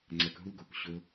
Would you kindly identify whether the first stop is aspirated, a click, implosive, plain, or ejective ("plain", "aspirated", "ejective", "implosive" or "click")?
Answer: click